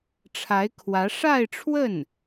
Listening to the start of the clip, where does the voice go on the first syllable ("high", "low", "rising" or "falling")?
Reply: rising